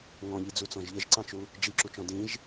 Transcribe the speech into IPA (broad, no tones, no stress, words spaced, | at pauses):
ŋɔ̃ʎid͡zut͡sɔ̃ʒ ʎɘʒǀɑ̃t͡ʃu | d͡ʒiǁut͡ʃɔ̃ dĩʒ